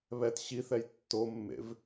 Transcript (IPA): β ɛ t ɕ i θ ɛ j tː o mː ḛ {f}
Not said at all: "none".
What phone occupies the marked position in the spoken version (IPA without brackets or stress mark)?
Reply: v